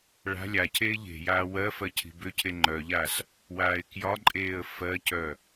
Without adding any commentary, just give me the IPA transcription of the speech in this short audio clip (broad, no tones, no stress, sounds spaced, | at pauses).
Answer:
ɭ a̤ lʲ a cʰ eː ʎ e̤ j aː w ɜ f ɜ cʰ i̤ b ʏ cʰ e ŋ͡ǃ œ ʎ a s | w aː ɪ̯ k j ɒ ǃʼ eː ə̯ f ɜ c œ